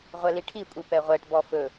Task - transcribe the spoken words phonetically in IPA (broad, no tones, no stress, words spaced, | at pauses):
ʁʷɛliʈʰikʷʼi pɛʁʷɛʈ bɔfɵ